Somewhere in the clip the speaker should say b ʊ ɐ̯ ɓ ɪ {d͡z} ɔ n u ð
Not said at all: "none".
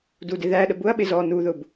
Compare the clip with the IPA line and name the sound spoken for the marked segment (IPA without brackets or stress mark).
z